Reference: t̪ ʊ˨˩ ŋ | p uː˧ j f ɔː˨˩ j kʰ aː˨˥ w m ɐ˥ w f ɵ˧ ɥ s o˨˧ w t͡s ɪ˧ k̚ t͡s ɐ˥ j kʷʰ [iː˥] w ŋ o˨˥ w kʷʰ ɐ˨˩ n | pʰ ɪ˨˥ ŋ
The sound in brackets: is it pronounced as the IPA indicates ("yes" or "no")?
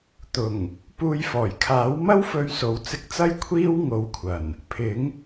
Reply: yes